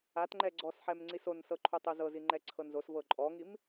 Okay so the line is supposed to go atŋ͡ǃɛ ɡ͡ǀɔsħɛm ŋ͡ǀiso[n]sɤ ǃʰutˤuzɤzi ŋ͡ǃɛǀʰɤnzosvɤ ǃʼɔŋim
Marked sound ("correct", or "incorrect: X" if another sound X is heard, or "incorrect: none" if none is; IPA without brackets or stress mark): correct